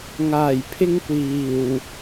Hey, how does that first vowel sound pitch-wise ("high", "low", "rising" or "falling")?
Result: low